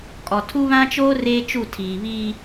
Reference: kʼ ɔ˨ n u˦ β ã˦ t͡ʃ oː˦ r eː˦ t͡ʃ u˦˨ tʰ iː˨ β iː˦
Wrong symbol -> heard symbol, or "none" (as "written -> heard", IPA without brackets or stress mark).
n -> tʰ